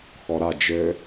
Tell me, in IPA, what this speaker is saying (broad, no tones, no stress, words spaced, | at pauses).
xɔɾa d͡ʒɘ